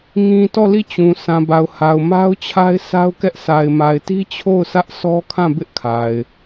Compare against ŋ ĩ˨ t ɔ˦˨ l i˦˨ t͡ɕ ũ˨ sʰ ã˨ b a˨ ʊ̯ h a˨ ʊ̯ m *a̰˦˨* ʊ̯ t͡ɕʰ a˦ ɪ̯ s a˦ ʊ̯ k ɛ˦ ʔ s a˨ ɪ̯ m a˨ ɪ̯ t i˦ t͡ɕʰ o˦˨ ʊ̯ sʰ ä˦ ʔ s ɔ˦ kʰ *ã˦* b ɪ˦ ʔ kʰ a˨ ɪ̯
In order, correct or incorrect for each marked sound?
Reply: incorrect: a˦, incorrect: ã˦˨

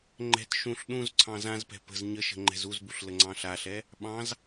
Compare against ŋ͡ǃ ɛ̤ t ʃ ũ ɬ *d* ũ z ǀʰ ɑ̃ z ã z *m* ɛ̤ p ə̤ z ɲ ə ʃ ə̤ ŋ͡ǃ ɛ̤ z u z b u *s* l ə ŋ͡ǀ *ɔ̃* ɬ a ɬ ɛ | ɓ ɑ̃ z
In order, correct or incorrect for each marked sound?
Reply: incorrect: ɗ, incorrect: p, incorrect: ɬ, incorrect: ɑ̃

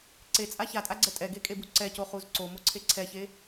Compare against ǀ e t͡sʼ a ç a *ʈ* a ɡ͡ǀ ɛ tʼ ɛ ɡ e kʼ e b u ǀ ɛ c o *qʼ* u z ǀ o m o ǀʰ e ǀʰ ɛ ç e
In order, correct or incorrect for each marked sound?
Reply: incorrect: tʼ, incorrect: χ

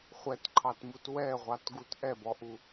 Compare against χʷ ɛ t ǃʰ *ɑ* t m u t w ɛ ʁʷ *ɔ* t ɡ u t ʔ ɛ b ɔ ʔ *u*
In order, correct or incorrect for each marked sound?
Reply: correct, incorrect: ɑ, correct

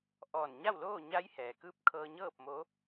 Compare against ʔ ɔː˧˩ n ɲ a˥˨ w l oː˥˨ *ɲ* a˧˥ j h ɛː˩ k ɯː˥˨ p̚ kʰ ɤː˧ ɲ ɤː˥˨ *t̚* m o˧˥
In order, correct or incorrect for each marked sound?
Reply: correct, incorrect: p̚

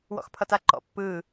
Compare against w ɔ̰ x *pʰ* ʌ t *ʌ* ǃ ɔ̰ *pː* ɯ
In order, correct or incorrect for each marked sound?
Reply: correct, incorrect: a, correct

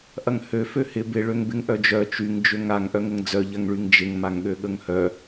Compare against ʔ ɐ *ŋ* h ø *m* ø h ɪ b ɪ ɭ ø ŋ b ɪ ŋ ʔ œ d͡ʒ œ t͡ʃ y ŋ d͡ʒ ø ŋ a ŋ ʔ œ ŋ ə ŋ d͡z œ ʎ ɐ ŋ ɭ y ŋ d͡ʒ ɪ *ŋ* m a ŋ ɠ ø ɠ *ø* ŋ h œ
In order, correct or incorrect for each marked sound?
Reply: correct, incorrect: f, correct, incorrect: ə

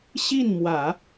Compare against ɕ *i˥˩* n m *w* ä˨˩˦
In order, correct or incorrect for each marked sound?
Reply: correct, correct

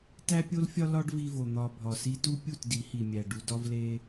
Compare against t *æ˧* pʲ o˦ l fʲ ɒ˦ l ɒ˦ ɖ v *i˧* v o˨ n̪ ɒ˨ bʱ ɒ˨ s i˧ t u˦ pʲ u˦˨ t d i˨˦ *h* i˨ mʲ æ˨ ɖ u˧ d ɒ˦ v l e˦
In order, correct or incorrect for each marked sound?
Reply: incorrect: æ˦, correct, correct

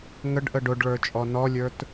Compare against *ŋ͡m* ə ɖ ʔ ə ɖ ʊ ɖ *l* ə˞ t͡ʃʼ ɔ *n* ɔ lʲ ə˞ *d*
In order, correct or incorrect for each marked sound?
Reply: incorrect: ŋ, incorrect: ɭ, correct, incorrect: t

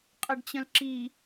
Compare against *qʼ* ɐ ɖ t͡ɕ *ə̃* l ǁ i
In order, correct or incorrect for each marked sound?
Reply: correct, correct

